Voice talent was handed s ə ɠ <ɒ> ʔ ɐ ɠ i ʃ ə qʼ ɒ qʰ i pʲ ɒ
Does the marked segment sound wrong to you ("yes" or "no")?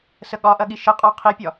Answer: no